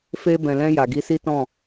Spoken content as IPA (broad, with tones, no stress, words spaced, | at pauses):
fe˧ bɛ̃˨lɛ̃˧ ja˨ɡi˨˦ si˦tɔ̃˦˨